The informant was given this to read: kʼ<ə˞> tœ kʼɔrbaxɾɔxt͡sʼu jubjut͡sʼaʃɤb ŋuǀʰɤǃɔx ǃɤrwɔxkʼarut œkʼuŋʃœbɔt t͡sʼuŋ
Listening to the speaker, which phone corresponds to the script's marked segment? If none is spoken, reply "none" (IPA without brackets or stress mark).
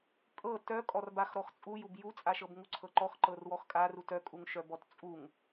ɤ